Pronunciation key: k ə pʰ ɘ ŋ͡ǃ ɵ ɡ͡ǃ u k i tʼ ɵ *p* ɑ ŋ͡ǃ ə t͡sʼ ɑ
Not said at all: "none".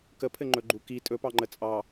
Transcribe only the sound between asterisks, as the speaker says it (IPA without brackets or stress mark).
p